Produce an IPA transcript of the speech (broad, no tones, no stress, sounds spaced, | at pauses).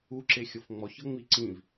u ǁ e xʲ ɤ f ŋ͡m ɔ ç ɤ ŋ͡m i ǀ ĩ v